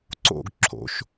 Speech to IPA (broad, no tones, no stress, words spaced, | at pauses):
ǀo̰ɡ ǁʰo̰ʃ